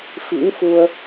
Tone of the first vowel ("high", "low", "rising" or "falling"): rising